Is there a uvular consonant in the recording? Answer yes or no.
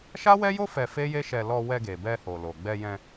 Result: no